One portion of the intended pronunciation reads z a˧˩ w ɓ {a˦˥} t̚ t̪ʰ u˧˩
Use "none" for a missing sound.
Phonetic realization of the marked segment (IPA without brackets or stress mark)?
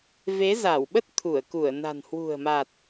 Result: ə˦˥